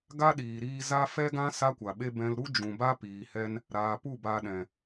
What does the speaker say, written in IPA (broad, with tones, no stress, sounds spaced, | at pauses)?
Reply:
ɡ a˦ ɗ iː˨ ɾ iː˧ z a˦ f ɛ˦ ɡ ã˦ s a˦ kʷ a˨ ɓ e˦ b ɛ̃˧ l ɾ u˦ d͡ʒ ũ˨ b a˦ p iː˨ h ɛ˧ n | ɾ aː˨ p u˦˨ b aː˧ ɗ ɛ̃˨